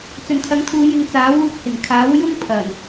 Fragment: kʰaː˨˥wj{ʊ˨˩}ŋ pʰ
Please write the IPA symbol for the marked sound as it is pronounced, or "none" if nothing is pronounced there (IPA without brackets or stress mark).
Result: ʊ˥